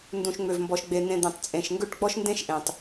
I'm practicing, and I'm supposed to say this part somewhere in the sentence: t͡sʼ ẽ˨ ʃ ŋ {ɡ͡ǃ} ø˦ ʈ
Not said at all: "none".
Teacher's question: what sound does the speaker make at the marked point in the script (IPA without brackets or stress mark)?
ɡ